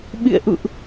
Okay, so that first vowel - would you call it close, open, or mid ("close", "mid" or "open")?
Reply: close